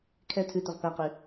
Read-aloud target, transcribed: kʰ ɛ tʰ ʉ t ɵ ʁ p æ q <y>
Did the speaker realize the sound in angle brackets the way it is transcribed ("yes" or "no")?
yes